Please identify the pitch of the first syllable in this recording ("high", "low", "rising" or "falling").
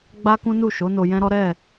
high